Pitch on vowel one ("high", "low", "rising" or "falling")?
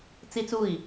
high